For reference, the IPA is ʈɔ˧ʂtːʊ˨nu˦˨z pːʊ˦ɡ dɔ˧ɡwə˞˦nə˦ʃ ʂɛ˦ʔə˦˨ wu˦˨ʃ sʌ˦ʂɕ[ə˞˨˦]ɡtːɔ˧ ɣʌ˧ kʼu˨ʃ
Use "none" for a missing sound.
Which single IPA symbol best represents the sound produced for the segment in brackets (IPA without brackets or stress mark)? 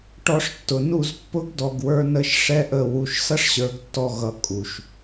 ə˞˨˦